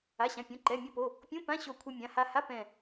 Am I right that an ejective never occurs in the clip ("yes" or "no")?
yes